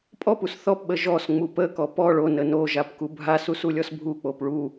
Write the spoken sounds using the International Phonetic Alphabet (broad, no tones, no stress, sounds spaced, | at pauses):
pʼ ɔ p u s θ ɔ p ɓ ə ʒ ɔ s ŋ͡m u p ə k ɔ p ɔ ɭ o n ə n o ʒ a p k u bʱ a s u s u lʲ ɔ s bʱ u k͡p o p ɭ u